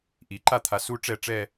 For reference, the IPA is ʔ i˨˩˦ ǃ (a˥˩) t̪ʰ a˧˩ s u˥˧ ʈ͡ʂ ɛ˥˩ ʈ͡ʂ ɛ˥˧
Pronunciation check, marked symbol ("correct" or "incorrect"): correct